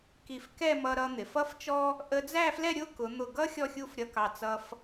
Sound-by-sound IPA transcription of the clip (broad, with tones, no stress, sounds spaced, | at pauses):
k i˧˩ f k ɛ˥˧ m ʌ˧ ɾ ʌ˧ n̪ ɪ˩˧ f ʌ˥ f t͡ʃ ɔ˥ | ʔ ə˧ d͡z æ˥˧ f l ɛ˥˧ ɾʲ ʊ˥˧ k ʊ˩˧ n̪ ʊ˧˩ ɡ ʌ˥ xʲ ɔ˥˧ xʲ u˥˧ f ɾʲ ʌ˧ k ɑ˧˩ t͡s ʌ˧ f